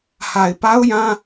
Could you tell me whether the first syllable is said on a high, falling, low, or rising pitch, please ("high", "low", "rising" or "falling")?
low